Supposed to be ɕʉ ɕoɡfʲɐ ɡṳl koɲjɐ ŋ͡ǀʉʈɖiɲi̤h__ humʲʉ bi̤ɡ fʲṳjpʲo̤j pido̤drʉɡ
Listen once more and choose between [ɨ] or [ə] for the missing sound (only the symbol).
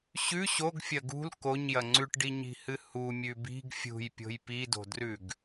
ɨ